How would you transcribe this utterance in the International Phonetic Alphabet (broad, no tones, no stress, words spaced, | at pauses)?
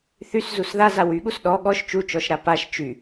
θyszus ðaza wyɠus ɗɔ ɠɔʃ t͡ʃut͡ʃɔʃɾa paʃ t͡ʃy